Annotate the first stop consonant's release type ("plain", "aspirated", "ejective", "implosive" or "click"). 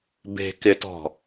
plain